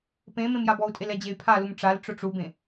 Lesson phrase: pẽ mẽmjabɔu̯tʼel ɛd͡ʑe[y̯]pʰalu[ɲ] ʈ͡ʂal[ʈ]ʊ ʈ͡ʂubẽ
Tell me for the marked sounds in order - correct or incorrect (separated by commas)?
correct, incorrect, incorrect